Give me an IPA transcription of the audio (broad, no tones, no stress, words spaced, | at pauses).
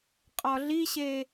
qʼɒɮiɕe